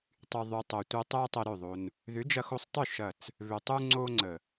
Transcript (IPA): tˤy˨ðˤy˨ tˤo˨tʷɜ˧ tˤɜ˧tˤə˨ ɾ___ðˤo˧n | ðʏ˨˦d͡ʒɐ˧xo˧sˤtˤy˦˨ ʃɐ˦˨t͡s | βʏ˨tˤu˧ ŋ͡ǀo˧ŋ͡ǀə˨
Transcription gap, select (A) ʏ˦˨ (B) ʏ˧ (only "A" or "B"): A